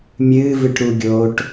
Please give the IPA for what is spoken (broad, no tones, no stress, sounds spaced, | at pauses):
mʲ ɨː v ɨ ʈ ɾ u ɡʲ oː ʈ